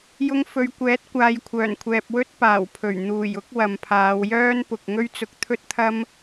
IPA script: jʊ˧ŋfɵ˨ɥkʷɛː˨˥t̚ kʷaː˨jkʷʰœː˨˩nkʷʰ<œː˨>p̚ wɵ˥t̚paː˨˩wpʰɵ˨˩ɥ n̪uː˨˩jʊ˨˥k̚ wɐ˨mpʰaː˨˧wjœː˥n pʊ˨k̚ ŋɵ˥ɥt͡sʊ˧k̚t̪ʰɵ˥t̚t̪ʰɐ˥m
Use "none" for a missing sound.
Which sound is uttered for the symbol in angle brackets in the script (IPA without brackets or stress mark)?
ɛː˨